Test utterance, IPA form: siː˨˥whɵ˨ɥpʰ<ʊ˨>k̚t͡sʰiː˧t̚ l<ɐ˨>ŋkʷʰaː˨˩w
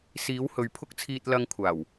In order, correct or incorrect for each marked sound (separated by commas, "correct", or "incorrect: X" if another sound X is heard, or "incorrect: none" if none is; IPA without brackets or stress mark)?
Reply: incorrect: ʊ˥, incorrect: ɐ˧